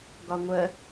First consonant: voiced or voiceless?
voiced